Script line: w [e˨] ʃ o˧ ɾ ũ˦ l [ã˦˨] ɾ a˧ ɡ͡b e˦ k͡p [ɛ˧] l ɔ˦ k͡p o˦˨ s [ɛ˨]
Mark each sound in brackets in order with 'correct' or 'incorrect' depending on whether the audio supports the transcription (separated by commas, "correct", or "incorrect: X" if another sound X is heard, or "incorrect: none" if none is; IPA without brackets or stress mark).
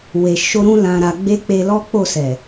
correct, incorrect: ã˧, incorrect: e˧, correct